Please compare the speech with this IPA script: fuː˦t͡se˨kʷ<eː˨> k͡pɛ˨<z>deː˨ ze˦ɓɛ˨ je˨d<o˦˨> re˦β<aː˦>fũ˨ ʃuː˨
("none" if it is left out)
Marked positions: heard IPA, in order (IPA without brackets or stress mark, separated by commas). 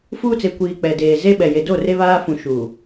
iː˨, none, o˦˨, aː˦